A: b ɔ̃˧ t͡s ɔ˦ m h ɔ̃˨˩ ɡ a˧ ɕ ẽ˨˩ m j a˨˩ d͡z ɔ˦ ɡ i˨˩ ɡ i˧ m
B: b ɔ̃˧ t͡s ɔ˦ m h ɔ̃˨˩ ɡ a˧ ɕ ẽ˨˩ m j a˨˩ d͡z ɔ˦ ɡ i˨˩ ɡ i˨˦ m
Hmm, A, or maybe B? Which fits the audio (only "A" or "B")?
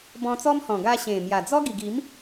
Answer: B